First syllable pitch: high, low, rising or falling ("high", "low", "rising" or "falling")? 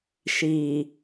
low